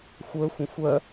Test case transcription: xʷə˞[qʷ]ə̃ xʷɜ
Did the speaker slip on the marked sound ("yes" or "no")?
yes